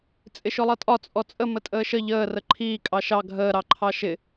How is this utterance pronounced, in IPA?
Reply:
t͡sʼ ɪ ʃ ʊ lˠ ʌ tʼ ɒ t͡sʼ ɔ t͡sʼ ə m ə tʼ əː ʃ ə ʎ əː r ə ǃʰ iː kʼ ɑ ʃ ɑ ɡʱ əː ɾ ɑ ǃʰ ɑ ʃ ɪ

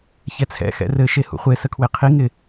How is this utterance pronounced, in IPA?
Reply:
ç ɛ t͡sʰ ɛ̰ x ɛ̰ r ɘ ʃ e h ṵ χʷ e s ə kʰ w e qʰ i ŋ ɪ

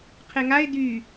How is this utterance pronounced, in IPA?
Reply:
qʰ e ŋ a ɪ̯ d y

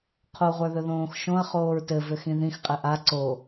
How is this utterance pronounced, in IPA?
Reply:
qʰ o ʁʷ ə˞ ð ɵ ð õː x ʃ õ ɐ̯ χ oː ɹ t ɘ v ʏ x ĩ ð ĩ x qʼ ɘ ʔ a ǀ o

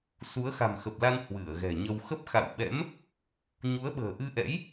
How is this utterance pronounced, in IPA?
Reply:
s u˨˦ ə̯ x a̤˨˩ m x ə˨˩ p̚ l a˧ n h w ɨ˧˩ ə̯ ɣ ɛ̤˨˩ ɲ ə˧ w x ə˦˥ p̚ x a̰˧˨ w ɓ ɛ̰˧˥ m | ɲ u˨˦ ə̯ ɓ ə̤ː˨˩ ʔ ɨ˧ ʔ ɛ̰˧˥ j

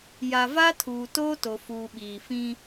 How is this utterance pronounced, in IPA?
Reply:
j a˨ v a˦ tʰ uː˨ t oː˦ t o˨ f uː˨ ɓ iː˨ f ĩ˦

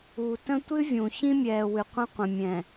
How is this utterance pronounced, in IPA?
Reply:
u˨ t ə̃˦ tʷ ɨ˦ vʲ ũ˨ ç ĩ˦ mʲ ɛː˨ w ɨ˨ qʷ ə̃˦ qʷ ə̃˨ mʲ ɛ̃˨

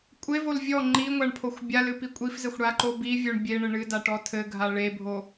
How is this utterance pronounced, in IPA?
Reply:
kʷʼ e v o l vʲ ɔ ŋ͡ǃ i ŋʷ a ɳ pʰ o xʷ bʲ a l ɨ p i kʷʼ i f z ɘ xʷ ɽ a ǃ o b i vʲ o ɳ bʲ e ɳ ɘ ɳ ɨ d a ʈ ɔ tʰ ɘ ɡʱ a ɭ e bʱ o

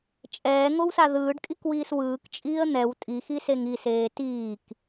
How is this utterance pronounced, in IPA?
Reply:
t͡ʃʼ ɛː ŋ o w s a ð ɯː ɖ kʼ i k w iː s w ɯː k t͡ʃʼ iː ə̯ n̪ ɛ w tʼ i x i s e ŋ i s eː t iː k

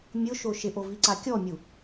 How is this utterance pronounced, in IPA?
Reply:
mʲ ʊ ʃ o ʃ ɪ ʔ o v i ǀ a kʲ ɔ mʲ u

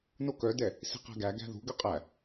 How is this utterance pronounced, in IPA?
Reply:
n o k œ d ɛ | s i̤ q æ̤ ɡ æ ɡ æ̤ ð ṳ ɡ ø qʼ æ

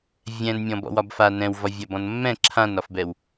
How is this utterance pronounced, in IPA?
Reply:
vʲ ɛ̃ n mʲ ɔ̃ b ɔ̰ w ɒ b f a n ɛ̃ w v ɒ vʲ ɐ b ɔ̃ n mː ɛ̃ ǁʰ ã n ɒ f b ɛ w

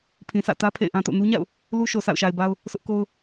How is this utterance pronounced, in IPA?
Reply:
pʰ ĩ˨ sʰ ä̰˦˨ t ä˦ pʰ ḛ˦˨ ɪ̯ ʔ ã˦ t o̰˦˨ n u˦ ɲ a̰˦˨ ʊ̯ | l u˦ ʃ o˨ s a̰˦˨ ʊ̯ ʃ a˨ ɪ̯ b a˦ ʊ̯ | sʰ ʊ˦ ʔ k o˦ ʊ̯

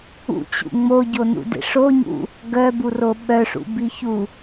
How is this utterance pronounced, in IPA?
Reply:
ṵ t͡ɕ ṵ ŋ͡m o ɟ o n ṵ d ḛ ʂ o ɲ ṵ | ɡ œ b u r o ɓ œ ʂ ṵ b i ç u

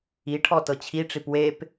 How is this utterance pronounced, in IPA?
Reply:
i ʈʰ ɔ t ɤ t͡ɕʰ i ʈ͡ʂ i p w e p

